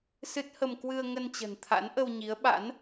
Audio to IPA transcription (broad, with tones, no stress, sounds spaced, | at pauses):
s ɨ˦˥ t̚ h ə˧ m k w ɨ˧ ə̯ ŋ ə˧ n t͡ɕ ə̤˨˩ n t̪ʰ a̰˧˥ n ʔ ə˧ w ɲ i˨˦ ə̯ ɓ a̰˧˥ n